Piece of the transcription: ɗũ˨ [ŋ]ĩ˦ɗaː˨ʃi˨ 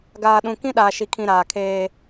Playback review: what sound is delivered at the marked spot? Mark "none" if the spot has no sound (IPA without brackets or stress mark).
k